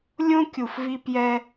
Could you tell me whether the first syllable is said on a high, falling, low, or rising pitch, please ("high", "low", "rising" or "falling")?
high